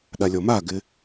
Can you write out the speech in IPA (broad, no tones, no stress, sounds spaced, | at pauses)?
ɗ a lʲ ɔ m a ɡ ɪ